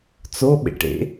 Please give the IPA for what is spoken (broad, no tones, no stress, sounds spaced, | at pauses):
t͡s o ɓ ḛ ʈ ḛ